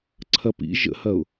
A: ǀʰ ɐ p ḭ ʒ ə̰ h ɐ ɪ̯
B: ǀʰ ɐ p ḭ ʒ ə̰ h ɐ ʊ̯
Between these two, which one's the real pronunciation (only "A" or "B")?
B